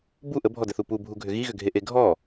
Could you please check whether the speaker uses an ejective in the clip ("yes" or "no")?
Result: no